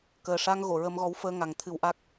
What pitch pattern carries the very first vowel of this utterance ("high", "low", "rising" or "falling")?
low